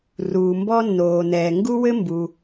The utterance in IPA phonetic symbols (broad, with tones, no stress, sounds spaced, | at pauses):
r uː˩ m b ɔ˥ nː oː˩ n ɛː˩ ŋ ɡ u˥ w ɘ˥ m b u˩